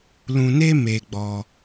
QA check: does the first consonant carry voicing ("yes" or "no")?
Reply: yes